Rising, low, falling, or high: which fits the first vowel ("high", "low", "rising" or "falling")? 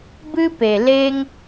high